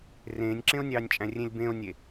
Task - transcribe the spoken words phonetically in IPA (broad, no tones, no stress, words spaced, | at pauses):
rẽːnʲǁẽo̯nʲɑːnʲt͡ʃʼæ̃ rʲẽlʲbẽo̯nʲe